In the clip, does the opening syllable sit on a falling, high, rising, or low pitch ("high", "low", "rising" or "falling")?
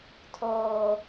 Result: low